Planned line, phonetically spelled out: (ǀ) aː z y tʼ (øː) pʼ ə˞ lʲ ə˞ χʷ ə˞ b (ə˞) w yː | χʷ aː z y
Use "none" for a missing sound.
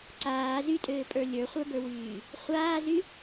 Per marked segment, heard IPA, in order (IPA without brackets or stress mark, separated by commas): ǀ, øː, ə˞